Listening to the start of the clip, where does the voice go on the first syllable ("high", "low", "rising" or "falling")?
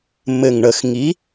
low